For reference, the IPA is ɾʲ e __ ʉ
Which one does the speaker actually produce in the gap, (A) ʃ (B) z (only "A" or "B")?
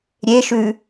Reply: A